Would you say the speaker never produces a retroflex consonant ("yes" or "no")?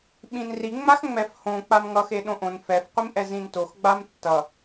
yes